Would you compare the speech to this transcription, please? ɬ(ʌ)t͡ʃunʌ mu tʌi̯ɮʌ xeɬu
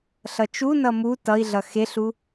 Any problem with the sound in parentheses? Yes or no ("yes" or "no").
no